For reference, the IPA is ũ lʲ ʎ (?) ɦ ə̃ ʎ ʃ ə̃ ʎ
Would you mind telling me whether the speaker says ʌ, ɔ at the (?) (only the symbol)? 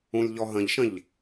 ɔ